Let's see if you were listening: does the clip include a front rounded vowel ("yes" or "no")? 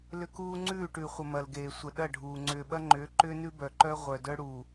yes